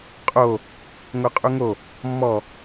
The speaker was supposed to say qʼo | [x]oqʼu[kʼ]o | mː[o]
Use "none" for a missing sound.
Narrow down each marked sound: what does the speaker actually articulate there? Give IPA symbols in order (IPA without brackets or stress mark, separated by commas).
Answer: ŋ, ŋ, ɔ